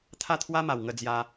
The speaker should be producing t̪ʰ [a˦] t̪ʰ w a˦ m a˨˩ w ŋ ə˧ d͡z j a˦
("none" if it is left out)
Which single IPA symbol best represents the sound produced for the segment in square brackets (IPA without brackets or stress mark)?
a˥˧